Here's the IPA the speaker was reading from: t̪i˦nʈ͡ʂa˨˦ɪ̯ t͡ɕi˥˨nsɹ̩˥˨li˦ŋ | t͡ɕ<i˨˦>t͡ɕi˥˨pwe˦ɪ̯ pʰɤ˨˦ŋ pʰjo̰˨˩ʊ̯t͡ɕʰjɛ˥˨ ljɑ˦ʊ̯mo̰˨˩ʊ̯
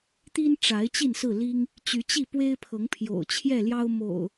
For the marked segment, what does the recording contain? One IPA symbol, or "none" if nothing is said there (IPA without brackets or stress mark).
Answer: y˨˦